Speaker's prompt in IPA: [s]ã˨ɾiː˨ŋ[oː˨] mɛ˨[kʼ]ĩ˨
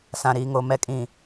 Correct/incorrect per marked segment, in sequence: correct, incorrect: o˨, correct

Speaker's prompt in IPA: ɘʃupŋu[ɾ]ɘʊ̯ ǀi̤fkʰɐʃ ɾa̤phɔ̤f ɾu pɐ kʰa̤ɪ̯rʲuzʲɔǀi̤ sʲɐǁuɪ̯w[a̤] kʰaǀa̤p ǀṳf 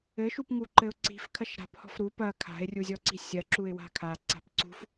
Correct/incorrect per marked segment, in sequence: incorrect: ǃ, correct

